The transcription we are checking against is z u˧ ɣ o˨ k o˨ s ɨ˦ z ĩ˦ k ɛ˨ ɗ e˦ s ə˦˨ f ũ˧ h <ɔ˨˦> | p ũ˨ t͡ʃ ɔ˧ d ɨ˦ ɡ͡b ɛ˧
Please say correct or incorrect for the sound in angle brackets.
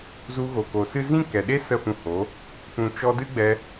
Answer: incorrect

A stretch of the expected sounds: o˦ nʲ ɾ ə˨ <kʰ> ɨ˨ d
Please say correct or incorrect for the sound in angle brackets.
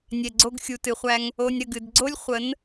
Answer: incorrect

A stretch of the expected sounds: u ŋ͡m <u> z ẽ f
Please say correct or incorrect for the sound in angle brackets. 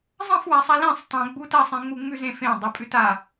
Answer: incorrect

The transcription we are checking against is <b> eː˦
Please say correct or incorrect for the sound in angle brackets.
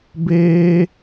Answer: correct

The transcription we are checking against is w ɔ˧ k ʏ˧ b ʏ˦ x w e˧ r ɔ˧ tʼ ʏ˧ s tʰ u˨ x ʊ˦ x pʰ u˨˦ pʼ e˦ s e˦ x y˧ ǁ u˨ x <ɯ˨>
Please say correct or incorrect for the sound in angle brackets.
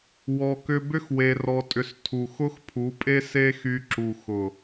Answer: incorrect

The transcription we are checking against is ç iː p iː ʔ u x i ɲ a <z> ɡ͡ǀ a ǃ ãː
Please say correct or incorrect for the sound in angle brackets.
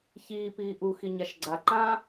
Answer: incorrect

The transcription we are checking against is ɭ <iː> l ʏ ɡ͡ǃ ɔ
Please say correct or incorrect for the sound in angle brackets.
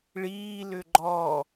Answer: correct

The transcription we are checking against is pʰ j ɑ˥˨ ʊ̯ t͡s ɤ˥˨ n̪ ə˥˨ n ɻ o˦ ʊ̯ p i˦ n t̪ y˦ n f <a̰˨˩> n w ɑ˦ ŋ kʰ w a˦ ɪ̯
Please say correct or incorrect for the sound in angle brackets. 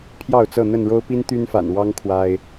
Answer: correct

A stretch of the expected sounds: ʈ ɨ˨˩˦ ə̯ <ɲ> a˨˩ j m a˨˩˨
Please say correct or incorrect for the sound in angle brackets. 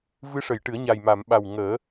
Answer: correct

